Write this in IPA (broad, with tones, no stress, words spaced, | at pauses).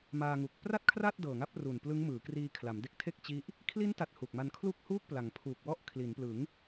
maː˧ŋu˨˩k̚ pra˥˩t̚kʰra˥˩t̚ dɤː˨˩ŋa˦˥p̚ru˨˩n plɯ˦˥ŋmɯː˩˦kriː˧ kʰla˩˦mde˦˥k̚tʰe˥˩k̚ t͡ɕi˦˥ʔ | kʰli˦˥nta˨˩t̚ hu˨˩k̚ma˧nkʰlu˥˩k̚huː˥˩k̚ pla˩˦ŋpʰuː˨˩k̚wɔ˥˩ʔ kʰli˩˦nplɯ˩˦ŋ